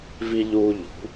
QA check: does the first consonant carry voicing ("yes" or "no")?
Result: yes